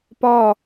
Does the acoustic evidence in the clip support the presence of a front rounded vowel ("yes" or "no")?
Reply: no